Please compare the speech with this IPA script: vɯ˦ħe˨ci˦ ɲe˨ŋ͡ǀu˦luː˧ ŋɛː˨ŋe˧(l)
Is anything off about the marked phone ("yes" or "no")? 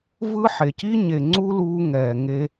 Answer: yes